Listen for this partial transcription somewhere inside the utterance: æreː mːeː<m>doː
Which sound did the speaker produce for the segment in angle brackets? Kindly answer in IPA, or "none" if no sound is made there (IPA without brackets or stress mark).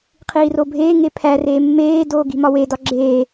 none